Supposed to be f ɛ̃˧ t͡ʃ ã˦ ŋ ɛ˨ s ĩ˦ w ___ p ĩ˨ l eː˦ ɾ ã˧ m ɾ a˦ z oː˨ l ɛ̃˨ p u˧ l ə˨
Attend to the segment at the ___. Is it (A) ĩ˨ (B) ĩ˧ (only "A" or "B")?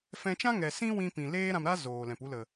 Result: B